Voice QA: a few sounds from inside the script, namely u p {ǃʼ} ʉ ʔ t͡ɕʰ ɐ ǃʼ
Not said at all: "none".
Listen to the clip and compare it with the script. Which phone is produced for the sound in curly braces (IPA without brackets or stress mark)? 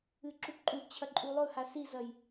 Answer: ǃʼ